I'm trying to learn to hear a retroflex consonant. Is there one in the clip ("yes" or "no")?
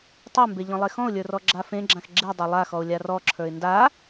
no